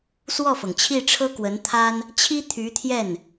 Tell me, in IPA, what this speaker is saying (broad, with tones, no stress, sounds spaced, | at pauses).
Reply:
s w ɔ˥˩ f ɤ˩ ŋ t͡ɕʰ i˥˩ ʈ͡ʂʰ ɤ˥ k w ə˧˥ n t̪ʰ a˥ n | t͡ɕʰ i˥ t̪ʰ y˧˥ t̪ʰ j ɛ˥˩ n